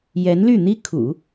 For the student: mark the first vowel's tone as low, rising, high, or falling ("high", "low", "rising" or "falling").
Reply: rising